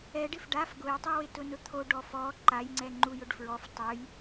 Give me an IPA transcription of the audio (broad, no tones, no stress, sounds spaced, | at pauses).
ɛ ɖ ɪ f ɖ a f ɡ ʊ j tˤ u w ɪ t ʊ n ʊ t̪ʰ o ɖ ɔ f ɔ ǃ a j ŋ͡ǀ ɛ ŋ͡ǃ u j ʊ ɖ f ɹ ɔ f tˤ ʊ j